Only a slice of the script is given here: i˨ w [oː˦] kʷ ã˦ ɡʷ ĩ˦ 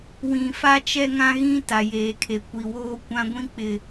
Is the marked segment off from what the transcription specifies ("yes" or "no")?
no